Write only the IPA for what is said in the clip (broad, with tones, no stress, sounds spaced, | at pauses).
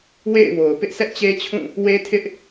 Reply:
w ḛ˦˨ ɪ̯ w o˨ ʊ̯ p ɪ˦ ʔ sʰ ɛ˦ ʔ t͡ɕ e˦ t͡ɕʰ ũ˦˨ | w e˦ tʰ ɪ˦ ʔ